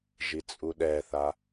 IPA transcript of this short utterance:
ʒ i t͡sʼ u ɗ ɛ θ a

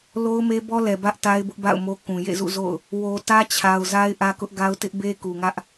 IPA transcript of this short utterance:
l o˦ ʊ̯ m e˦ b ɔ˦ l ɛ˨ b ä˦ ʔ t a˦ ɪ̯ b ʊ˦ ʔ b a̰˦˨ ʊ̯ m o˦ k ũ˨ j ḛ˦˨ z ṵ˦˨ z o̰˦˨ ʊ̯ | w o˨ t ä˦ t͡ɕʰ a˨ ʊ̯ z a˦ ɪ̯ ʔ ä˦ k ʊ˦ ʔ ɡ a˦ ʊ̯ t ɪ˦ ʔ b e˦ k u˨ ŋ ä˦ ʔ

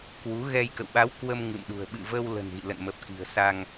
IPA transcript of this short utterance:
k w u˨˦ ɣ ɛ˧ j k ə̰˧˨ w ɓ a˨˦ w k w ə˧ m ŋ ɨ̰˧˨ m ɗ ṳ˨˩ ə̯ ɓ ɨ̰˧˨ v ə˧ w l ə̤˨˩ n ɣ ḭ˧˨ l ə̰˧˨ n m ə˨˩ p̚ k i̤˨˩ ə̯ s a˧ ŋ

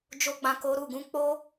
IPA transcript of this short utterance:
d͡ʒ o˦ ɡ͡b ã˧ k o˦ ɾ u˦˨ ɡ ũ˨˦ k͡p o˦

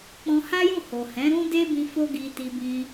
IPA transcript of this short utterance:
k͡p ɔ̃˧ h a˦ j ũ˦˨ h o˨ h ɛ̃˨˦ ɾ ũ˦ d e˦ b ĩ˧ f o˦ ɡ i˧ t i˧ b ĩ˧

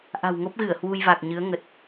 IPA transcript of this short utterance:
ʔ a̤˨˩ w ŋ o˦˥ p̚ ɣ ɨ˧˩ ə̯ h w u˧ j v a˨˩ k̚ ɲ ɨ˨˦ ə̯ ŋ ə˨˩ t̚

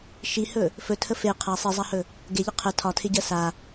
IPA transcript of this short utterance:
ʃ i h ɵ | f ɵ tʰ ə f e qʰ a sˤ i zˤ a h ɵ | ɡ e ʎ ɪ qʰ ə tʰ ɒ tʰ ɪ ɟ ɜ s a

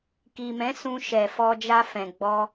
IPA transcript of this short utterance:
k i˨ m ɛ̃˨˦ s ũ˧ ʃ ɛ˨ f ɔ˧ d͡ʒ a˧ f ɛ̃˨ ɡ͡b ɔ˧

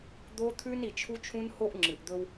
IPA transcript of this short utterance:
d̪ o˦ t̪ʰ ʉ˦ n i˨ t͡ʃʰ u˦ t͡ʃʰ ũ˦ n h o˦ ʔ ŋ͡ǁ ɨ˨ ʔ d̪ ɵ˦ w

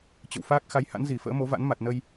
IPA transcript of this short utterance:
t͡ɕ ə̰˧˨ w f aː˦˥ k̚ x a˨˦ j h a̰˧˥ n z i˧˩ f ə̰ː˧˥ m o˨˦ v a̰˧˥ n m a˨˩ t̚ n ə˧ j

